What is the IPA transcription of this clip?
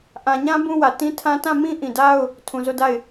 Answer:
ʔ ã˨ ɲ ã˦ b ũ˦ w ä˨ t ĩ˦ tʰ ã˦ t ã˦˨ m ĩ˦ ʔ ĩ˨ d a˦ ʊ̯ | tʰ ũ˨ z o˦˨ d a˦˨ ɪ̯

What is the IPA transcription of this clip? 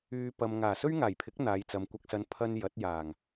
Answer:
yː˧ p ɐ˨ m ŋ aː˨˩ s ɵ˥ ɥ ŋ aː˨˩ j pʰ ɪ˨˥ k̚ n̪ aː˨˧ j t͡s ɐ˨˧ m kʷ ɐ˨ k̚ s ɐ˨˧ n pʰ ɐ˧ n j ɐ˨˥ t̚ j aː˨˩ ŋ

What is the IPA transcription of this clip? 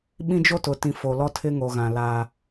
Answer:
ɓ ĩ˦ d͡ʒ o˦ t ʊ˨ t ĩ˨ f o˨ l ɔ˦ tʰ ɪ˦ ŋ o˨ ɣ ã˨ l a˦

